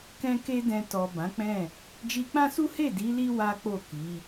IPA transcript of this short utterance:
k ɛ̃˦ k e˦ d ɛ̃˧ t ɔ˨ b ã˨˦ k͡p ɛ̃˦˨ | d͡ʒ i˧ k͡p ã˦ s u˦ h e˦˨ d i˨˦ l i˦ w a˦ k͡p o˦˨ k i˨˦

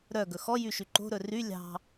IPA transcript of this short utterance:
ɾ œ ɡ ɵ x ɔ j y ʃ y ǃ o̤ ɾ ɵ r y lʲ ɑ̤

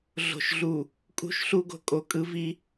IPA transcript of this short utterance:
ɮ o̤˨ ʃ ɮ u˨ | kʼ ṳ˦˨ ʃ ɬ u˦ ɡ o̤˨ kʼ o˨ kʼ ɯ˦ v i˦

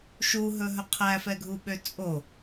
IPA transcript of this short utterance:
ʃ u ɦ ɵ ɦ ɵ qʰ æ f ɛ ɡʱ u ɓ ø t͡sʼ o

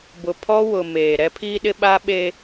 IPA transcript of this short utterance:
b ʊ˨ pʰ ɔ˦ w ʊ˨ m eː˨ ɾ ɛ˦ pʰ iː˦ ɗ ɪ˦ ɓ a˦ ɓ e˦

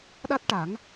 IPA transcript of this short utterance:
ɗ a˦˥ t̚ ʈ a˨˩˦ ŋ

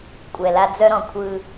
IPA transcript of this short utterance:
kʷʼ ɛ˨ l a˦ d͡z œ˦ ɾ ɔ̃˨ kʷʰ ɯ˦

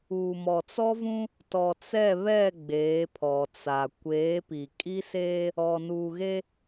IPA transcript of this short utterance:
uː˨ m ɔ˨ t͡s ɔ˦ v ũ˦ | t ɔ˨ t͡s ɛ˦˨ β ɛ˦˨ ɡ͡b eː˨˦ pʰ ɔ˨ t͡s a˨ kʷ eː˨˦ p i˨ kʼ i˦ s eː˦ | ɔ˨ n uː˨ ɣ e˦

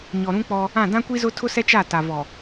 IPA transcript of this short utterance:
ɲ ɔ˨ ɾ ũ˦ k͡p ɔ˦ | ã˦˨ d ã˦ kʷ i˦ z ʊ˦ tʰ ʊ˦ s ɛ˦ t͡ʃ a˦˨ t a˨ v ɔ˨

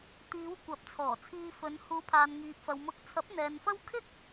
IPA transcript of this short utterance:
t̪ iː˨˧ w kʷ ɐ˨˥ p̚ t͡sʰ ɔː˨˩ t͡sʰ iː˧ f ɵ˨˧ n h uː˨˧ pʰ aː˨ n ŋ iː˨ p̚ f ɐ˨ w m ʊ˨˥ k̚ t͡sʰ ɐ˨˥ p̚ n̪ ɛː˨ n f ɐ˥ w kʰ ɪ˥ k̚

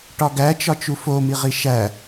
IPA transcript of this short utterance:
ʈ ɒ ɡ æ t͡ʃ ɒ t͡ʃ u f o m i ʁ i ʃ æ

